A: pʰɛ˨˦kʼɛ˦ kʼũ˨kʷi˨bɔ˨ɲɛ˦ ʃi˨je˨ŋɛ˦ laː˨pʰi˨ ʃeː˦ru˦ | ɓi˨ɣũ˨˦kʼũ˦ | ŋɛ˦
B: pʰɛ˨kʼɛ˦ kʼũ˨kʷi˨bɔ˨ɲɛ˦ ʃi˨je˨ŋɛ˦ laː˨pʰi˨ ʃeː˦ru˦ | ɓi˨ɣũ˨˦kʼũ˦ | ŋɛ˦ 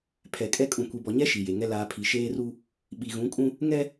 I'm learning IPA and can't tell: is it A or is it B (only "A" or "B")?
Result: B